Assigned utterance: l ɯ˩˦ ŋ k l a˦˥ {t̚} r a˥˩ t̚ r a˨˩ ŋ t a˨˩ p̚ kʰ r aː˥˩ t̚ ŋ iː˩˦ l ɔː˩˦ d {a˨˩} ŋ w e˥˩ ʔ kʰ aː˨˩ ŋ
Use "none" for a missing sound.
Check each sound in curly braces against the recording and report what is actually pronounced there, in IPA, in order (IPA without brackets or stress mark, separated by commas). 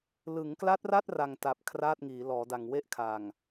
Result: t̚, a˨˩